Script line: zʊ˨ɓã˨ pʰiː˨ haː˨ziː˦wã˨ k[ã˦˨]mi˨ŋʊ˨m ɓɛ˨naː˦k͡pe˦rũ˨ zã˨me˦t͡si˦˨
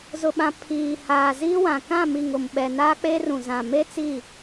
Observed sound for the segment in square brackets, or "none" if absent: ã˦˨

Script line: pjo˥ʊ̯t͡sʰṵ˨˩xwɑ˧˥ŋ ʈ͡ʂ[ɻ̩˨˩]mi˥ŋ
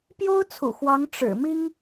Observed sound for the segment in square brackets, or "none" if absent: ɻ̩˨˩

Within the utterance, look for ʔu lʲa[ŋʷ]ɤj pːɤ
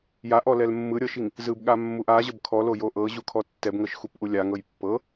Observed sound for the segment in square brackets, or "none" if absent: ŋ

